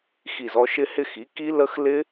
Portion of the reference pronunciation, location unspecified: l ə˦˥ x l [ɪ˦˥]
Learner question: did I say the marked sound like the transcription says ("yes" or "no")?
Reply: yes